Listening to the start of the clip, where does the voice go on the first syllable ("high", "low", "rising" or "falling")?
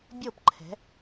falling